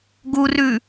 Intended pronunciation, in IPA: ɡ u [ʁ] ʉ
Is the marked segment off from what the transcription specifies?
yes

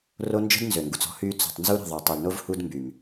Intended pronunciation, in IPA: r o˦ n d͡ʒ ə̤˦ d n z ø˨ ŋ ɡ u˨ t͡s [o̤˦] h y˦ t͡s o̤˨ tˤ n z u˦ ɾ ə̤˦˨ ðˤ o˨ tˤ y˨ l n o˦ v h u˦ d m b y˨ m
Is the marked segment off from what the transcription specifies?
yes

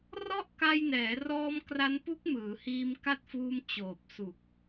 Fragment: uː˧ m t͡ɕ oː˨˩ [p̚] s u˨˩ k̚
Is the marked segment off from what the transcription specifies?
no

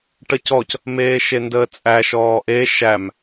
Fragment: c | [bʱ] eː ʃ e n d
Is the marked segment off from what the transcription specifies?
yes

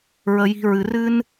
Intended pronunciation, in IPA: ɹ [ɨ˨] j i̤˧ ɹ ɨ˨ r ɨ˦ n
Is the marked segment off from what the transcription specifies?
yes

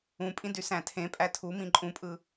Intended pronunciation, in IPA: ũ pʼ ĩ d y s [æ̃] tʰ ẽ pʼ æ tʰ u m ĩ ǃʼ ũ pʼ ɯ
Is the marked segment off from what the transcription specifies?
no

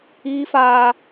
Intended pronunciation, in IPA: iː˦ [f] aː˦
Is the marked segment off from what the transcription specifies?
no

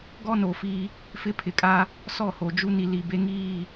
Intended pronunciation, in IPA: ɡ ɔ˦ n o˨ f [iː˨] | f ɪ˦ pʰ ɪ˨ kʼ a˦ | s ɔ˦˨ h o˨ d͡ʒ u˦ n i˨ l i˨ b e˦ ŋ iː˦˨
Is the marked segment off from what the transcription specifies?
yes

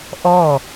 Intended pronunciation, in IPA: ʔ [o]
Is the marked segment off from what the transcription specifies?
yes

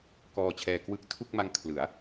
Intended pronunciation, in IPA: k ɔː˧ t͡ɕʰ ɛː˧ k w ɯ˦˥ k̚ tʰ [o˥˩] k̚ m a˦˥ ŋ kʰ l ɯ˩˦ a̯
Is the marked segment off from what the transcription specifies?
yes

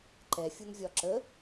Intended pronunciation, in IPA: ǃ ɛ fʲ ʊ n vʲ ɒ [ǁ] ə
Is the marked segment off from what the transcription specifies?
no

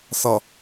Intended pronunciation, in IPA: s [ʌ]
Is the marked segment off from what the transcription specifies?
no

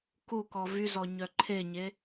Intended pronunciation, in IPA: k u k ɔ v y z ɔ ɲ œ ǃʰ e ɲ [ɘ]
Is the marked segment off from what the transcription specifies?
yes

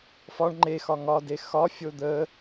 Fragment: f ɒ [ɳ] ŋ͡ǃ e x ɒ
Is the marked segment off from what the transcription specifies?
no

